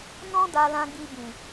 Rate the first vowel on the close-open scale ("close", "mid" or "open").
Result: mid